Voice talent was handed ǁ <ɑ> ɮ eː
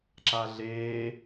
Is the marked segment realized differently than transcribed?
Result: yes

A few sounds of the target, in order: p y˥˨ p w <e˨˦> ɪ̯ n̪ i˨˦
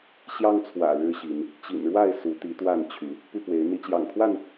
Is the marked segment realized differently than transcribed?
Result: no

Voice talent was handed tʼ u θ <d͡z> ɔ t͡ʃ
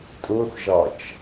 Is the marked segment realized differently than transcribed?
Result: yes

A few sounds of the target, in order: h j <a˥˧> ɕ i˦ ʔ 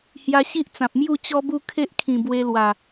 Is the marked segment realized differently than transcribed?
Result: yes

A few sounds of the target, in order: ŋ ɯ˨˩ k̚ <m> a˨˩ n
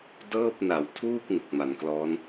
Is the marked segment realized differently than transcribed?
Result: no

